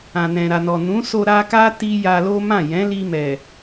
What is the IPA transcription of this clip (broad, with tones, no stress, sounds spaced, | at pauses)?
ã˨ n ɛ̃˨ ɾ a˨ n ɔ˨ n ũ˨˦ s o˧ ɾ a˧ k a˦ t i˦ j a˧ l o˦ m ã˦˨ j ɛ̃˨˦ l i˧ m ɛ˨